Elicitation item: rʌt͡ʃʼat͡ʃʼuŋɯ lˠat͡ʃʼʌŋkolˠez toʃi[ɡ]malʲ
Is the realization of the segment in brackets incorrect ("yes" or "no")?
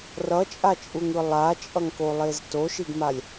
no